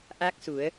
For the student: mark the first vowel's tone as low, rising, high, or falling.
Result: rising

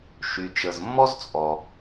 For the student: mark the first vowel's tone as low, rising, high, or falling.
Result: low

